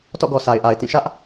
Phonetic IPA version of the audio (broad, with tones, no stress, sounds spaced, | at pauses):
t ɔ̰˦˨ ɡ ɔ˨ s a˨ ɪ̯ ʔ a˨ ɪ̯ t ĩ˦˨ ʃ ä˦ ʔ